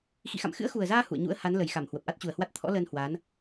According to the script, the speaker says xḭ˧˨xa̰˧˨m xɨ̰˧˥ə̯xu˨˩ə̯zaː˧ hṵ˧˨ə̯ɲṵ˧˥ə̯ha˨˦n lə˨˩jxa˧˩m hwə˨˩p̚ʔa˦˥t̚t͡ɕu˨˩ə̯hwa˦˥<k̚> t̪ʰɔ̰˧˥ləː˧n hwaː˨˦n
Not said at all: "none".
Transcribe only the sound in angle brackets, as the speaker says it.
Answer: t̚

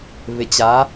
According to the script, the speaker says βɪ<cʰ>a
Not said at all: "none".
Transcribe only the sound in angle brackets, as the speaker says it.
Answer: t͡ɕ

